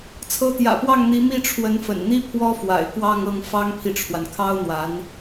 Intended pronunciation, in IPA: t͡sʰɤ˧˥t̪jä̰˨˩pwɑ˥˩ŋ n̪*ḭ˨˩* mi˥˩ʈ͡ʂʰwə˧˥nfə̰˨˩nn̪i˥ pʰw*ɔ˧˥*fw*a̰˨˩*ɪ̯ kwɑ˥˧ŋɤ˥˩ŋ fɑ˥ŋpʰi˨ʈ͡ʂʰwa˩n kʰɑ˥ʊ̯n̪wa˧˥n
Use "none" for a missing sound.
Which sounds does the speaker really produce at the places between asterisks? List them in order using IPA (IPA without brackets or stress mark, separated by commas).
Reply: i˧˥, ɔ˥, a̰˨˩